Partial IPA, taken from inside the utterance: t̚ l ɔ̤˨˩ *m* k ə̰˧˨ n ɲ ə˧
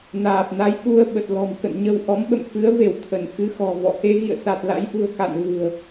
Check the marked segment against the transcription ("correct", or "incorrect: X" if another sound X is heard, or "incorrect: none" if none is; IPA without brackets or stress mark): correct